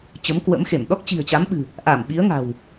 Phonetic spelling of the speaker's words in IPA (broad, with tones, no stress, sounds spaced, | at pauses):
t͡ɕ ə˨˦ m k w ə̰˧˥ m x e˧˩ m ɗ ɔ˦˥ k̚ t͡ɕ i̤˨˩ ə̯ t͡ɕ a˨˦ m ɓ ɨ̤˨˩ | ʔ a˧˩ m ɓ i˨˦ ə̯ ŋ a̤˨˩ w